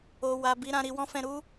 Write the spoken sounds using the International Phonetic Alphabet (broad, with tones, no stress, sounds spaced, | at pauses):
o˨ w a˨ b i˨˦ ɾ ã˧ ɾ i˧ w ɔ̃˦ f ɛ̃˧ ɾ u˦